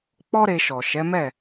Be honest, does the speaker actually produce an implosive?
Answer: no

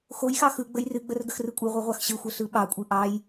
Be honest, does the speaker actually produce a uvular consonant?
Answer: yes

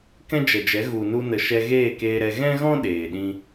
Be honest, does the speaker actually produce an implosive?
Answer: yes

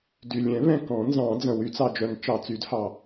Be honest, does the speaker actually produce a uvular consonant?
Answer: no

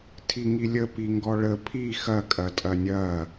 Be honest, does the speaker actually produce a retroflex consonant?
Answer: yes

